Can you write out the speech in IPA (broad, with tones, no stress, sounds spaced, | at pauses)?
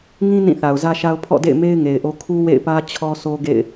ŋ ĩ˦ n ĩ˦˨ θ a˨ ʊ̯ z ä˦ ʃ a˦ ʊ̯ pʰ ɔ̰˦˨ d ḛ˦˨ ɪ̯ m e˦ ɪ̯ ŋ e˨ ɪ̯ ʔ o˦ kʰ u˦ w ḛ˦˨ ɪ̯ p ä˦ t͡ɕʰ ɔ˦ s o˦ ɡ ḛ˦˨ ɪ̯